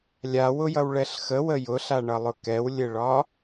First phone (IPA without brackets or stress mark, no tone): lʲ